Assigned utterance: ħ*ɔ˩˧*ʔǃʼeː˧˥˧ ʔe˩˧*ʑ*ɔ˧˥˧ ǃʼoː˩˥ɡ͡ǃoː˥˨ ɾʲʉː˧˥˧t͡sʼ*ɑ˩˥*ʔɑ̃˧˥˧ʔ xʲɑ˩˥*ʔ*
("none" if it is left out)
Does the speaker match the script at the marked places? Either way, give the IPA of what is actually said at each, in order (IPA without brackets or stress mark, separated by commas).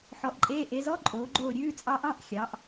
ɔ˩˧, z, ɑ˦˥, ʔ